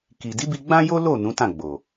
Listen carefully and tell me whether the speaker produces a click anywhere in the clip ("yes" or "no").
no